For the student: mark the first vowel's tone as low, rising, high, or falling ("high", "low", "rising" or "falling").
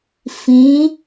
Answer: rising